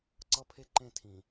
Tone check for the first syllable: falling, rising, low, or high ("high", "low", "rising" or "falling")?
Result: high